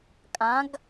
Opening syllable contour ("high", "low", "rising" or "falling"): rising